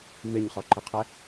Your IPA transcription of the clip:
m ɪ ɲ χ ɔ ǃ ɪ qʰ ɛ

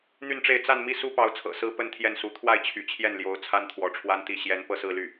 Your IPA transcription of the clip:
n̪ y˥˧ n ʈ͡ʂ e˥˧ ɪ̯ t͡s a˥˧ n m i˥˩ s u˥ p ɑ˧˥ ʊ̯ t͡sʰ ɤ̰˨˩ s ɹ̩˥ p ə˥ n t̪ʰ j ɛ˥˩ n s u˧˥ t̪ʰ w a˥˩ ɪ̯ t͡ɕʰ y̰˨˩ t͡ɕʰ j ɛ˥˩ n l j o˧˥ ʊ̯ t͡sʰ a˥ n t̪ʰ w ɔ˧˥ ʈ͡ʂʰ w a˥ n t̪ i˥˩ ɕ j ɛ˧˥ n p ɤ˥˧ s ɹ̩˥˧ l y˥˩

